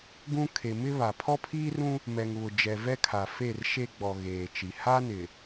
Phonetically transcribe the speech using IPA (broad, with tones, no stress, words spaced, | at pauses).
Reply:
ɡũ˦ kʰe˨mɪ˦ βa˨ pʰɔ˦pʰiː˦rũ˦ | mɛ˨ŋβʊ˨ d͡ʒɛ˨vɛ˦kʰa˨ fe˦˨rʃe˦ɡ͡bɔ˨ ɣeː˨t͡ʃi˨ ha˦nɪ˨